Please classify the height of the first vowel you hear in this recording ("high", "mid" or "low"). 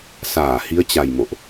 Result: low